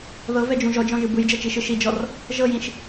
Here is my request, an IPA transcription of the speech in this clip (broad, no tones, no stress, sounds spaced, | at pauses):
ð ɤ v ɛ d͡ʒ ũ ʒ ɔ d͡ʒ ɔ̃ ʒ ɯ b ɯ j d͡ʒ ɤ t͡ʃ i ʃ ɯ ʃ i d͡ʒ ɔ r | ʒ ɤ j ĩ ʃ